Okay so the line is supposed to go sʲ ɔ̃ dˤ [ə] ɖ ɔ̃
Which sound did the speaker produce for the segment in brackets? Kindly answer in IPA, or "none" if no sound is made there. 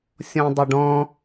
ə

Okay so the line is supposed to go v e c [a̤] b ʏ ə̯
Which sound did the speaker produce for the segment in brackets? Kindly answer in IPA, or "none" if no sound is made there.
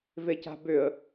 a̤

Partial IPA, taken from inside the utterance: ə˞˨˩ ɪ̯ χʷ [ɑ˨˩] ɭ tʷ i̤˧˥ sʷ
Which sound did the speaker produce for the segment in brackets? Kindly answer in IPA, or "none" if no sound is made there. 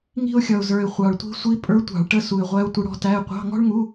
ɑ˨˩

